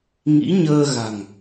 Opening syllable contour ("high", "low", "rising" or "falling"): rising